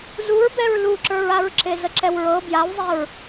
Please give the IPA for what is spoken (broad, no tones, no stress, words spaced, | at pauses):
zuɹbɛɹ luǁə˞ɹaɹǁe zəǁɛwɹɤ bjawzˤeɹ